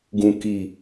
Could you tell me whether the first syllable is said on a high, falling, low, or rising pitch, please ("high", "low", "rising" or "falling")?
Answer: low